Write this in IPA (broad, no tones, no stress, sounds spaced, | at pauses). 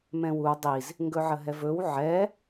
m ɛ̃ w u dˤ i z | ŋ ɡ ɵ ʕ ə ɦ ɛ v ɵ w ʕ ɛ